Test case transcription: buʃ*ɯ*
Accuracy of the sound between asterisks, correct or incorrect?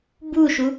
incorrect